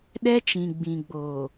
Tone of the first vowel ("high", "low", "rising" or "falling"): high